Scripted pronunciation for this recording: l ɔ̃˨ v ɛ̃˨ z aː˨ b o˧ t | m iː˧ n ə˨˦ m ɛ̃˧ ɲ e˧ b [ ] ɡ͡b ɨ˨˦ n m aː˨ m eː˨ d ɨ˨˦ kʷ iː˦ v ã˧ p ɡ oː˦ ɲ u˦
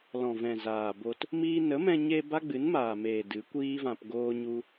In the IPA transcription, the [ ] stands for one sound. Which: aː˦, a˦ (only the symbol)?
a˦